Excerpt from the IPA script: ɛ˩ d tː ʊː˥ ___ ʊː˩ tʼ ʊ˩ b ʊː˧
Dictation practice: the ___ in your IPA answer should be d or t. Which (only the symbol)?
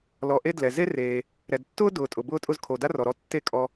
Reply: d